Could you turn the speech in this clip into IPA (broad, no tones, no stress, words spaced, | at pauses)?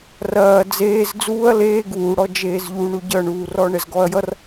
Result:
rɐː d͡zeːz d͡zuːɐ̯ leː ɡuːɽɔ d͡ʒeːzʎuɳu ɟʌɳuːrɔ ɳɛzɡɔɐ̯jʌr